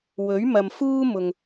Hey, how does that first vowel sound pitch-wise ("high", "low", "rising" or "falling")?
rising